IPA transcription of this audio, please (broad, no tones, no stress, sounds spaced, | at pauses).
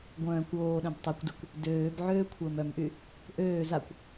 ɡʷ œ̃ː kʷ oː ɗ œ̃ b tˤ ɛ kʷ d ɪ kʷ | d øː b ʕ øː kʷʰ əː m œ m ʔ y | ʔ øː z a kʷ